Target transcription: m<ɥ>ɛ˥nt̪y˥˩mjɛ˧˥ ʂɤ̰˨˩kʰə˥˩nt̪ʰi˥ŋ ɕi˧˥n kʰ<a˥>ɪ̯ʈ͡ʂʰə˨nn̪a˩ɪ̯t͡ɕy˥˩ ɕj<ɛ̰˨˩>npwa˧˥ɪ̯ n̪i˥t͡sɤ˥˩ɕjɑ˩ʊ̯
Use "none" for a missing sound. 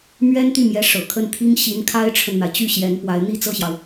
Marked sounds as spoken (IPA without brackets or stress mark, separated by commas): ɥ, a˥, ɛ˧˥